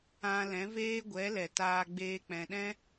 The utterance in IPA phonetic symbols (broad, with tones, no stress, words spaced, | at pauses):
ã˧lɛ̃˨˦ veː˦ɡʷɛ˨˦lɛ˨taː˧ ɡ͡beː˧k͡pɛ̃˨ɗɛ̃˦